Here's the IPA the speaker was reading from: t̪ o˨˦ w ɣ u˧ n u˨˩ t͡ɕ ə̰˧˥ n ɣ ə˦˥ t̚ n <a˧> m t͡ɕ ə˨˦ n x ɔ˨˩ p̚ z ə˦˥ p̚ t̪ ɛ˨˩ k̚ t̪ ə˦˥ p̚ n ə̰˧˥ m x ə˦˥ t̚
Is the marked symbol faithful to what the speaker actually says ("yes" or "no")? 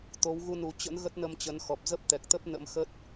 no